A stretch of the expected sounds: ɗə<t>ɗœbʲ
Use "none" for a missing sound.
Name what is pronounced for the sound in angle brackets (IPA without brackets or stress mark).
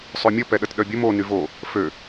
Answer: t